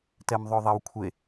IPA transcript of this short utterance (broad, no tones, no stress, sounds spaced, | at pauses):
t ɛ m ðˤ ɵ ðˤ e w kʷʰ e